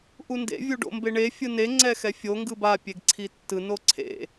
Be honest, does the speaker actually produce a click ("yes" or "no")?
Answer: yes